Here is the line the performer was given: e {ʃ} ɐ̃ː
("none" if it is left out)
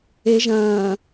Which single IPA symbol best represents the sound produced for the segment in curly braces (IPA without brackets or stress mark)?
ʒ